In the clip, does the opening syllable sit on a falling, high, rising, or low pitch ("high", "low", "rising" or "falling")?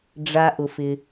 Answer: low